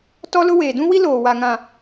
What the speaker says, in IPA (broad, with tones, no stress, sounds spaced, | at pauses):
t ɔ˦ l ʊ˦ w eː˨ d ũ˦ w i˦ l oː˨ w a˨ ŋ ã˨